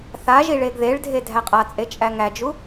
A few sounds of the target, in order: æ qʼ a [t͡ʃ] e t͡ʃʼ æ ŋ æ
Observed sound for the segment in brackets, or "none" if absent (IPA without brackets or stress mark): t͡sʼ